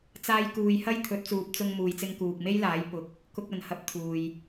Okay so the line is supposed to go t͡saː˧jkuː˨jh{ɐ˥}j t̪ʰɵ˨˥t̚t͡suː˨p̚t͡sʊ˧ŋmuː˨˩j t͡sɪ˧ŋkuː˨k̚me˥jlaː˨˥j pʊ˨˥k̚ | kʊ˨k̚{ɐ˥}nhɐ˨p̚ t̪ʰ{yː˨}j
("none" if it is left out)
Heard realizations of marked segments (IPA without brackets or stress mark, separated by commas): ɐ˥, ɐ˨˩, uː˨